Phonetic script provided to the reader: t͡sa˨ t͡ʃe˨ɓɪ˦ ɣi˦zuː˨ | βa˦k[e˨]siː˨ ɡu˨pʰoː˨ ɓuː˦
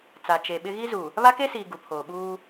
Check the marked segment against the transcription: incorrect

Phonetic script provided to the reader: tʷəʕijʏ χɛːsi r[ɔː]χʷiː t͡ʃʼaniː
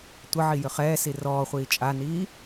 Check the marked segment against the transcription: correct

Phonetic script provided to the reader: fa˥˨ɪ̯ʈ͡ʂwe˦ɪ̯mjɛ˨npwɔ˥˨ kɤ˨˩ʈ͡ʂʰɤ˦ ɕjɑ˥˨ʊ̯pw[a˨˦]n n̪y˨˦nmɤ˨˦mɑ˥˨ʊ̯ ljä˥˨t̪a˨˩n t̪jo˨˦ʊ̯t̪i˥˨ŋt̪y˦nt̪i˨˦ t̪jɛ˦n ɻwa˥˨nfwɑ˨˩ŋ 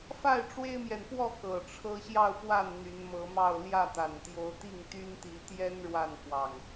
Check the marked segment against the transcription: incorrect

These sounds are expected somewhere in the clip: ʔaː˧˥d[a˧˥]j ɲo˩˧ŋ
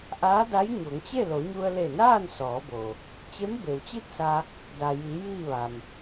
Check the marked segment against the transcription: correct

